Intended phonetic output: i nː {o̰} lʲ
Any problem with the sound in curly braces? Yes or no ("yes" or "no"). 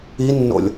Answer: no